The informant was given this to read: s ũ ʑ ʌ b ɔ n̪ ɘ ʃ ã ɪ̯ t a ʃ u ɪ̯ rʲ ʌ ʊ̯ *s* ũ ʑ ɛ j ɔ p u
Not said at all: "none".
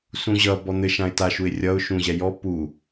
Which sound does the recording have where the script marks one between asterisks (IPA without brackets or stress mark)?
ʃ